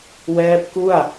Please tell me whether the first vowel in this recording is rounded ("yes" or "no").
no